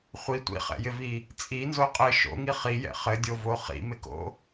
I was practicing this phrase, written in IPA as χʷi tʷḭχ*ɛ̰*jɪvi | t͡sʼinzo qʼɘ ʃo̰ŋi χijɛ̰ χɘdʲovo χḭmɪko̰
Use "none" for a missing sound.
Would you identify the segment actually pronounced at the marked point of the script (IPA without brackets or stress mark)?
ɛ̰